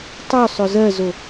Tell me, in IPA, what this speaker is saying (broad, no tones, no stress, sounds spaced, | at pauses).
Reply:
tˤ ø sˤ ø z ɜ z o